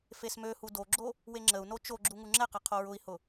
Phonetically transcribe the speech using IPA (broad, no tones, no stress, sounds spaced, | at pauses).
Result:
f e s m ø h u d o ɡ͡ǁ o | w e ŋ͡ǁ ə u̯ n o t͡ʃ o ɡ͡ǁ u ŋ u ŋ͡ǁ ɛ q ɛ qʰ o ɹ ʊ i̯ h ʊ